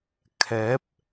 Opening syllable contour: rising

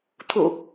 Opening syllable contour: low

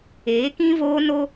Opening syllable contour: rising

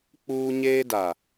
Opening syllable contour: high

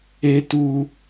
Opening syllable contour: high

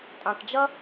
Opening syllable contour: low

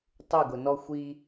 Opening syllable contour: falling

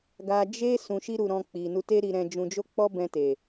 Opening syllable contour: high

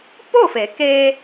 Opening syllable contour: falling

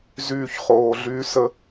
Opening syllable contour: falling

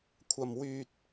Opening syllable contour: low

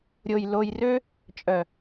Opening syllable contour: low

